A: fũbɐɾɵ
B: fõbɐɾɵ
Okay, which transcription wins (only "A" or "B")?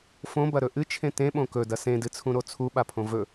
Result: B